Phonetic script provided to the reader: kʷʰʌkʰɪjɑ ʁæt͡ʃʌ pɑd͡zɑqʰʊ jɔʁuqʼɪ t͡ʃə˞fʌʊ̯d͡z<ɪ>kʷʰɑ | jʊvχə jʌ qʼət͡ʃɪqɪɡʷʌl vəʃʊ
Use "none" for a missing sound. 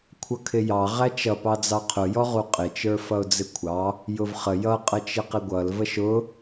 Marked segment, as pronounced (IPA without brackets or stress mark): ɪ